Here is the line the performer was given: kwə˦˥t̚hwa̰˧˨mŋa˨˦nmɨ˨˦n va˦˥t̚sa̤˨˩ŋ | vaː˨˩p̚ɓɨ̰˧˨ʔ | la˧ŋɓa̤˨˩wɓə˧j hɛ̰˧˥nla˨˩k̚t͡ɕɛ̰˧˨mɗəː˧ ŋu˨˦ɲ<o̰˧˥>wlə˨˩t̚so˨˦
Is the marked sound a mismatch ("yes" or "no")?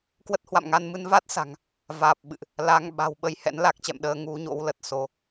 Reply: no